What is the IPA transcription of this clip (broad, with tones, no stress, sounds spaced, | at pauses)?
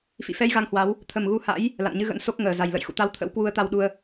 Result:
f ḭ˧˨ f ɛ˧ j ɣ a˧ ŋ h w a˨˦ w | t̪ʰ ə˨˩ m ɣ u˧ h a̰˧˥ j | l a̰˧˨ n ɲ ɨ˧ ɣ ə̰˧˥ n s o˦˥ k̚ ŋ əː˨˩ z a˨˩ j l ə̰˧˨ j x ṵ˧˨ t̪ a˧ w t̪ʰ ə̰˧˥ w k w u˧ ə̯ t̪ a˧ w ɗ u˧ ə̯